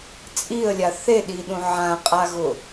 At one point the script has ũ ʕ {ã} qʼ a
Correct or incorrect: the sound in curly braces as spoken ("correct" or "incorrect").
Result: correct